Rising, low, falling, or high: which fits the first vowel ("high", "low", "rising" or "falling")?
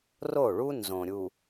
falling